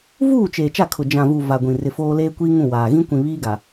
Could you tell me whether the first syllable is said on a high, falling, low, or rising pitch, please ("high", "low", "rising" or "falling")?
falling